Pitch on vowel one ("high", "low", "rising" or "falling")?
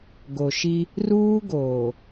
low